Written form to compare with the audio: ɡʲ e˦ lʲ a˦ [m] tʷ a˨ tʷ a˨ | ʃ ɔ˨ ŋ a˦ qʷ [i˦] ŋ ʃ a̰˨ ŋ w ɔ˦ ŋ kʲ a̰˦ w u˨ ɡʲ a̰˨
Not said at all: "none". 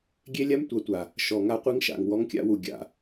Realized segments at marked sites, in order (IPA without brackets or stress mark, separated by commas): m, i˦